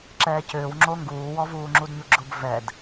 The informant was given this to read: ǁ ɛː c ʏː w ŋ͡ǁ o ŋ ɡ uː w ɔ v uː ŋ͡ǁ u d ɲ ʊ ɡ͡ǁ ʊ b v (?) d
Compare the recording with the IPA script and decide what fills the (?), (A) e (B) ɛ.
B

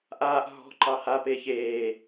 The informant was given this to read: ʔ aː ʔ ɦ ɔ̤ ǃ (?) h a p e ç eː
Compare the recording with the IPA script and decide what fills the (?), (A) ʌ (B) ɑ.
B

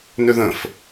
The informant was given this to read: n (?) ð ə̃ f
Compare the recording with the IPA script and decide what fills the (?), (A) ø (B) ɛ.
A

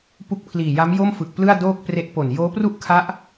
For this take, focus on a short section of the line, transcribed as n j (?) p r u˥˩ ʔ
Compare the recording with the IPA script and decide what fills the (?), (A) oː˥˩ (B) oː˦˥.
B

